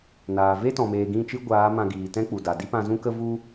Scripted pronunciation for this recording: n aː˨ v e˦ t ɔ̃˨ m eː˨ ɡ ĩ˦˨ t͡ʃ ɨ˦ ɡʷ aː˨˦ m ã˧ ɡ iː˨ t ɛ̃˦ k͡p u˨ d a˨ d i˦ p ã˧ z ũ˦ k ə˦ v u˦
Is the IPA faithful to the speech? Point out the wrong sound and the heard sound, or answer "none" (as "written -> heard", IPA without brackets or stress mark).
none